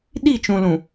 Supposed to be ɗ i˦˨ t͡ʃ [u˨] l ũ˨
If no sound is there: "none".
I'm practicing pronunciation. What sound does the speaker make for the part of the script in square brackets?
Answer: ũ˨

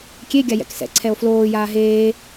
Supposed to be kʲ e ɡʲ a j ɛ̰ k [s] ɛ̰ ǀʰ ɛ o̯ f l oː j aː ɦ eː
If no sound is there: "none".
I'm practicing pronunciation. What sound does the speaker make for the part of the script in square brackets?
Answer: s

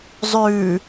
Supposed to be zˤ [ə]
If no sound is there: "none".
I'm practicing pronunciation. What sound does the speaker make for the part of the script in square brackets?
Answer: ʉ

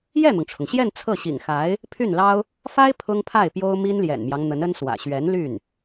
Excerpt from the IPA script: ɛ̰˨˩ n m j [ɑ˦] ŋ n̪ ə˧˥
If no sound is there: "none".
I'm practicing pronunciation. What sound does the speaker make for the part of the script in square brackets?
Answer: ɑ˦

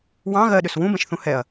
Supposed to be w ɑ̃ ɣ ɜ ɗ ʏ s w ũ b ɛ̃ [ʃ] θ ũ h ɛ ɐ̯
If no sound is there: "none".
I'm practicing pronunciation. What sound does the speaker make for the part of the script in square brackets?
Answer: ʃ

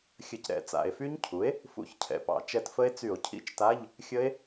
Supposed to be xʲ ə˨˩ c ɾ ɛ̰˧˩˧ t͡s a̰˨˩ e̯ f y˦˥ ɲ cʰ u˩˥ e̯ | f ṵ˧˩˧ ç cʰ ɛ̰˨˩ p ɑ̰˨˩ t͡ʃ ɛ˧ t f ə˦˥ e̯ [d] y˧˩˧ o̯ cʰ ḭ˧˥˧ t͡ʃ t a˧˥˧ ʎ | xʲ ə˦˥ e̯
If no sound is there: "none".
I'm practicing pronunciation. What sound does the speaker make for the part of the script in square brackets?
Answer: t͡s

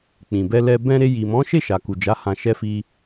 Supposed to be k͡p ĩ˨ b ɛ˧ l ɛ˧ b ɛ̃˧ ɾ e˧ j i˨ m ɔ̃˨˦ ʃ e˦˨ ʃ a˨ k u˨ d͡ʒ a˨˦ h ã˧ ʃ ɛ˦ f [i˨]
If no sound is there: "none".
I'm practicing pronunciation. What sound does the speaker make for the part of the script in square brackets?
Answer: i˦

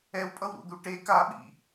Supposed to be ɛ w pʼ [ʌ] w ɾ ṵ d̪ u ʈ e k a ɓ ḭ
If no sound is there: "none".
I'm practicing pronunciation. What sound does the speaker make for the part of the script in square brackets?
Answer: ʌ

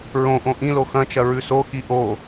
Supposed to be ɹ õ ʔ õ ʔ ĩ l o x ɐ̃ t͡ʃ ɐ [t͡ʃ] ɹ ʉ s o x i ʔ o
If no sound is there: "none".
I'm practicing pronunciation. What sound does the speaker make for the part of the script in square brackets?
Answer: none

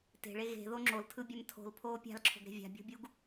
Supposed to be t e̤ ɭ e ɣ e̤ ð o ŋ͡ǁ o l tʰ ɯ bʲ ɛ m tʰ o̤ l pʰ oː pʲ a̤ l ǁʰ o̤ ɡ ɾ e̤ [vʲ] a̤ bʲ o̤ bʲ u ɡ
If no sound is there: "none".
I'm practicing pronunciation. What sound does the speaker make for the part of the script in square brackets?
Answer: vʲ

